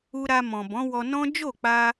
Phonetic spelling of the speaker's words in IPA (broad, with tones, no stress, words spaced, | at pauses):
u˧ɾa˧mɔ̃˨ bɔ̃˨˦wɔ˧nɔ̃˦ d͡ʒo˦˨k͡pa˧